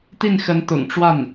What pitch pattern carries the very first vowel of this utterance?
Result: falling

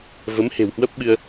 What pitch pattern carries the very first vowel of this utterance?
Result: rising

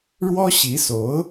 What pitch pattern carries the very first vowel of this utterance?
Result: high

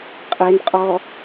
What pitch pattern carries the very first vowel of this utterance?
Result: low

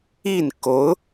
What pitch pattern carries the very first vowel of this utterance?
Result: falling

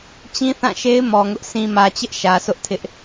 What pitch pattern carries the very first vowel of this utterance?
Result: high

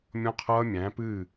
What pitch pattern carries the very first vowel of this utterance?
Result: high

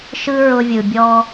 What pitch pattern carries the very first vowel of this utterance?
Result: high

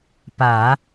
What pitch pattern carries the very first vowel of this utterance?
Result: low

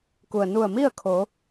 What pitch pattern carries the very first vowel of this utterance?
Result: low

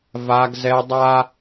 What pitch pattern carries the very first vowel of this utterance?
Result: high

